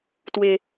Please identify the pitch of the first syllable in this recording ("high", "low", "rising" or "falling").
low